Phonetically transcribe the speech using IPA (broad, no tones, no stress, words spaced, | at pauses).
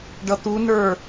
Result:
ɖʌt̪unə˞